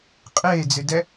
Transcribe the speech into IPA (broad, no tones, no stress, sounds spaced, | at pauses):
qʼ eː d͡z ɨ d ɛ